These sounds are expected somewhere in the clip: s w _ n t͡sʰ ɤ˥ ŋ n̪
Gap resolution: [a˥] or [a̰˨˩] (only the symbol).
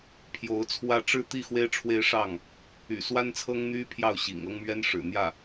a˥